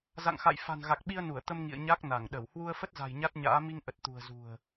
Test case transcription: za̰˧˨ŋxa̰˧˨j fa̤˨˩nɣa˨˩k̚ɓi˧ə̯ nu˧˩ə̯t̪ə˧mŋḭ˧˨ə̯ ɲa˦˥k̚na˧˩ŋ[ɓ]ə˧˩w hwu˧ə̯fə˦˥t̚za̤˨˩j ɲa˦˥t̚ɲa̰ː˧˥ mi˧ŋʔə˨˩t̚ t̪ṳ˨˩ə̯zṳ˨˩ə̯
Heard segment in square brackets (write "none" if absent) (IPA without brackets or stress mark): ɗ